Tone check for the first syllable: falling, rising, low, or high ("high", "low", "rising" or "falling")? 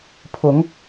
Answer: rising